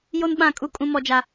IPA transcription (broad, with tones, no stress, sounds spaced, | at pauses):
j o˦ n ɓ ã˦˨ kʼ u˦ kʼ ũ˦ m ɔ˦ d͡ʒ a˦